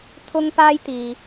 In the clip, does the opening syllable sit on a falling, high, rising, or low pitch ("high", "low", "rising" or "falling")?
high